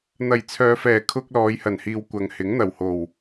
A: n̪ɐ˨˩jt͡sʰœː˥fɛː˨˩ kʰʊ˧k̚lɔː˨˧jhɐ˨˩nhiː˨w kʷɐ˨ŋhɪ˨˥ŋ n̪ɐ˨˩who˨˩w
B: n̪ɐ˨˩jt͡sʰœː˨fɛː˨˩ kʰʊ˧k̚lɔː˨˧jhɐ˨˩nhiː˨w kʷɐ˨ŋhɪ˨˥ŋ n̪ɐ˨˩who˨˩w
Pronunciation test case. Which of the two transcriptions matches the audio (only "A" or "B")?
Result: B